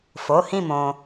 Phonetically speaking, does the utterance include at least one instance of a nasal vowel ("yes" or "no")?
yes